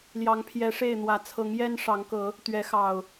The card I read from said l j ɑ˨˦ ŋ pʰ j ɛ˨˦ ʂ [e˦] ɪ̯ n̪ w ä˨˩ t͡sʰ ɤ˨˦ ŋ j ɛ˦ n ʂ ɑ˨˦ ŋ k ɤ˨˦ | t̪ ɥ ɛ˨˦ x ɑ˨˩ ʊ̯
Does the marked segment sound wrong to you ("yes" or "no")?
yes